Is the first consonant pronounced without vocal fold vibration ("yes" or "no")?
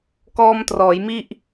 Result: yes